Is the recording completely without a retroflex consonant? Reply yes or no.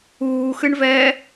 no